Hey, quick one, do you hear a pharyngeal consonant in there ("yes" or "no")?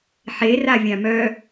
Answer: yes